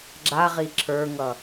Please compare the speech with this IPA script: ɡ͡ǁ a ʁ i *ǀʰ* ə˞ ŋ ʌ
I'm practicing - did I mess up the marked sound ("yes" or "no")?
yes